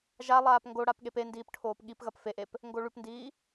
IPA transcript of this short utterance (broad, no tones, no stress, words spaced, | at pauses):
ʒa lˠaːpŋɡoɽap ɠependiːp ʈʰoːpɠipɣɐp feʔep | ŋɡoɭʉpndiː